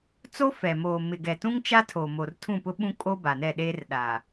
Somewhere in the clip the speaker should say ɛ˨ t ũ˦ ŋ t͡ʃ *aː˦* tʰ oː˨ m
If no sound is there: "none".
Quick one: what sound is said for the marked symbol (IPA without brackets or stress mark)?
a˦